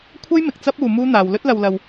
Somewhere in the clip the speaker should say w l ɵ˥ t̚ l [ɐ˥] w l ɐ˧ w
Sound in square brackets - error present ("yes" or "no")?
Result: yes